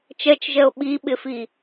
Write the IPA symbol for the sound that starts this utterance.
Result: t͡ʃ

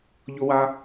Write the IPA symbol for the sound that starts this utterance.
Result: ʎ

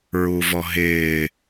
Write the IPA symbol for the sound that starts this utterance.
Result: ɹ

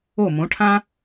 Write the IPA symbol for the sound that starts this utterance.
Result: o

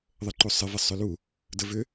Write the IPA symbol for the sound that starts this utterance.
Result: ðˤ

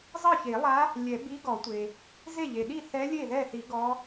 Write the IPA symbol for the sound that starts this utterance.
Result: zˤ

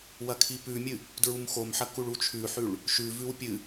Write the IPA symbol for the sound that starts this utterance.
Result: w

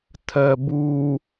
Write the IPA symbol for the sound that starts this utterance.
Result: tʰ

